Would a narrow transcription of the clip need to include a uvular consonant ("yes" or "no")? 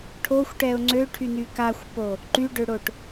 no